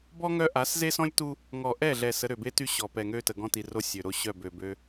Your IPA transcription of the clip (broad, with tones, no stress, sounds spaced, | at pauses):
b ɔ˦ ŋ œ˦ ʔ a˨˦ s z e˦ s ɔ̃˦ lʲ t u˦ | ŋ ɔ˨ ʔ ɛ˦˨ ɮ ɛ˨ s ə˨˦ ɾ ø˨ b e˦ t y˦ ɕ ɔ˨ p ɛ˨ ŋ ø˦ t ə˨ ɡ ɔ̃˦ t i˨ r o˦ sʲ ø˨ ɾ o˦ ɕ œ˦˨ b ø˨ b ø˦